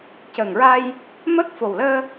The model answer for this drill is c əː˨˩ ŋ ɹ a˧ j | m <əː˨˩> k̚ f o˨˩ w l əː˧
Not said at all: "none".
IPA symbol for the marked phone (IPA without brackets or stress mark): əː˦˥